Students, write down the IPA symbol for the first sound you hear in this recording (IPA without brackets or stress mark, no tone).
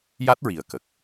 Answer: j